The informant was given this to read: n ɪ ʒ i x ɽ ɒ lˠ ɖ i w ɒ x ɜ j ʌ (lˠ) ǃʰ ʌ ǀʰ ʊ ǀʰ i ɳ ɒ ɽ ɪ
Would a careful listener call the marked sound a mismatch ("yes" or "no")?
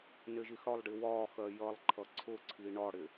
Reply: no